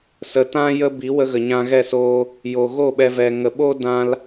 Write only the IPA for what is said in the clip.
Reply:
s ə˨ t ã˦ j ə˦ b i˨˦ w ə˧ ɣ ə˨ ɲ ã˧ ɣ ɛ˦˨ s oː˦ | j o˨ ɣ o˦˨ ɓ ɛ˧ v ɛ˧ ŋ ə˨ ɓ o˦ d ã˦ l

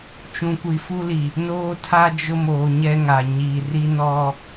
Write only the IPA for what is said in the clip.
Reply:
t͡ʃ ũ˨ kʷ i˨ f u˦ l i˨ | n oː˦ tʰ a˦ d͡ʒ ʊ˦ m o˨ ɲ ɛ˦ ŋ a˨ ɲ i˨ r i˦ n ɔ˦

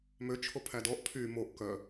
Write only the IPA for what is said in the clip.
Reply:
m ø t͡ʃʰ o pʰ æ d ɔ ʔ pʰ y m o ʔ k œ

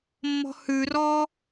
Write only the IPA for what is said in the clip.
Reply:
mː ɔ̤ h ʉ r ɔː

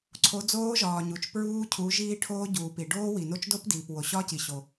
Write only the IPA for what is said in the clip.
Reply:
ǀʰ o˨˦ d͡z oː˦˥ ʒ ɒː˩ ɲ u˩ t͡ʃ p ɹ uː˦˥ cʰ u˨˦ ʒ iː˦˥ ʈʰ oː˦˥ ɟ uː˩ p i˩ ɖ oː˦˥ w i˩ n o˦˥ t͡ʃ d o˦˥ p d iː˩ p w o˩ ɕ ɒ˦˥ c i˩ ɕ o˩

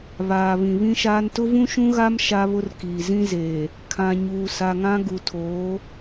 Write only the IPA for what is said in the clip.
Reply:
β aː˨ β ĩ˨ β ĩ˦ ʃ aː˦ n t ʊ˦ v ũ˦ ʃ ũ˦ ɣ a˦ m ʃ a˦ β ʊ˦ r k iː˨ z ĩ˦ z eː˨ | kʰ ã˨ ɲ uː˨ s a˨ ŋ ã˦ ɡ u˨ tʰ oː˨˦

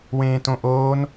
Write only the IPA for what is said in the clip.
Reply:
w ẽː t õ ʔ oː n

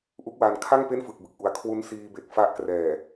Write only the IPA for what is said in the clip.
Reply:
ʔ u˦˥ k̚ w aː˧ n kʰ a˥˩ ŋ p e˥˩ n f ɯ˨˩ k̚ b ɯ˨˩ k̚ ʔ u˩˦ a̯ kʰ w u˦˥ n s iː˧ b e˨˩ k̚ f a˦˥ ʔ k r ɛː˨˩

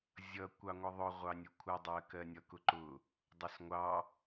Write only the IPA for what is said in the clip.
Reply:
zʲ ʌ kʷ ɑ ŋʷ ə ðˤ ʊ ʁʷ ɑ nʲ ʊ kʷʰ ʌ dˤ ɜ k ɜ nʲ ʌ k ʊ ǃ ʊ | dˤ ʊ s ŋʷ ɑ

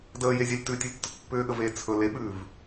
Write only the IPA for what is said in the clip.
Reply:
d əː j e zʲ a lʲ t ʉ tʲ ə lʲ tː ʊ t pː ʏː ɠ ə v eː t͡sʰ ɵ l e ɓ ʉː v

